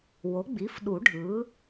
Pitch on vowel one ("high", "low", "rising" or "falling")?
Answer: rising